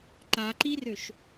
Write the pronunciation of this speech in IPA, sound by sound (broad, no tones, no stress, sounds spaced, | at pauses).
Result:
ǃ a ǃ i r ø ʃ